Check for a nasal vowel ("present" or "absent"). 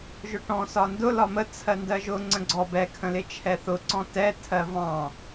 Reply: present